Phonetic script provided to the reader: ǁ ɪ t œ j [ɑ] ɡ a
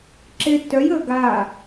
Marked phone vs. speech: incorrect: ə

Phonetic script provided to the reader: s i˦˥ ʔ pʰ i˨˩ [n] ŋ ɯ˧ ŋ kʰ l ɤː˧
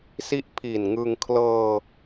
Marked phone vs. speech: correct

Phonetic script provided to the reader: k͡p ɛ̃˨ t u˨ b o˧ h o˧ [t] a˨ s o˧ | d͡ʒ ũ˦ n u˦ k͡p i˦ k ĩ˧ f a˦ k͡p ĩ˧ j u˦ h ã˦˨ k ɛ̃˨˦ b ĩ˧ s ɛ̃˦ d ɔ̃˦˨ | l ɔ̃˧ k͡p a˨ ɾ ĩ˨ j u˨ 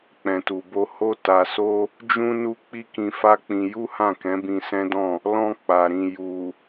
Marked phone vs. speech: correct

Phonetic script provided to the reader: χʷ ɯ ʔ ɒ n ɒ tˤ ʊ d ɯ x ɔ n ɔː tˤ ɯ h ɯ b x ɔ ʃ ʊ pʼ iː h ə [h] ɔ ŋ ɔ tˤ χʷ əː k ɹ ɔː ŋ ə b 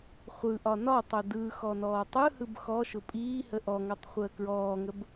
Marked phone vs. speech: incorrect: ʔ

